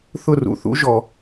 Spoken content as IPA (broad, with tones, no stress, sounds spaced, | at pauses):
θ ʊ˥˨ r ṵ˨ θ ṵ˦˥ ʒ ɔ˨